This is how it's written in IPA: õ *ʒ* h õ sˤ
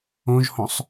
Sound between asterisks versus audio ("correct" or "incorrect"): correct